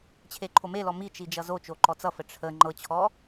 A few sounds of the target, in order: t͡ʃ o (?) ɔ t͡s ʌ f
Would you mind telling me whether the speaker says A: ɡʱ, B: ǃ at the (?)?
B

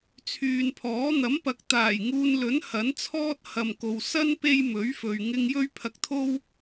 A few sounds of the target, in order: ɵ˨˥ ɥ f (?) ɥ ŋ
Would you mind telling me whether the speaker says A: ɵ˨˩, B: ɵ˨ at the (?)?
B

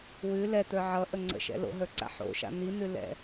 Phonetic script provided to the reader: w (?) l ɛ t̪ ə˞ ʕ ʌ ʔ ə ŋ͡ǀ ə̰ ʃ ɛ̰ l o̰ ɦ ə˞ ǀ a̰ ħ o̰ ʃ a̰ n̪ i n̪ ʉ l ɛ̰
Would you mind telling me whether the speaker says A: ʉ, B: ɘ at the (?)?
A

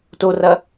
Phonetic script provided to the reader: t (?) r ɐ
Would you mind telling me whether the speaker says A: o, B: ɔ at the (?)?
A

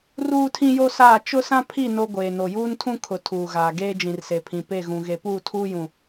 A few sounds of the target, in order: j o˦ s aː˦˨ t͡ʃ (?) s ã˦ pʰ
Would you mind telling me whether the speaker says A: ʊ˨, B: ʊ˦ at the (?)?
B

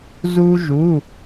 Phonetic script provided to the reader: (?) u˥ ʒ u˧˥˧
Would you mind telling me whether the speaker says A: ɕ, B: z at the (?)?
B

